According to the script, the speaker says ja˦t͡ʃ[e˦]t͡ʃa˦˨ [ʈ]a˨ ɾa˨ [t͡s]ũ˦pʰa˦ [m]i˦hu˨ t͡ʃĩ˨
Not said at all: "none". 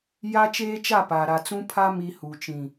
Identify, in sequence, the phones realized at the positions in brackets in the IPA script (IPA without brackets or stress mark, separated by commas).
eː˦, p, t͡s, m